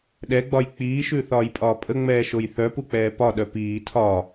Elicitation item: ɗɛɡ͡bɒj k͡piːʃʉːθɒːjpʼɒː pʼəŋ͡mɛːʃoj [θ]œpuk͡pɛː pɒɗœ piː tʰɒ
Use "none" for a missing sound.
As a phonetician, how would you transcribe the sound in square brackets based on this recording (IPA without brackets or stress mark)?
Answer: θ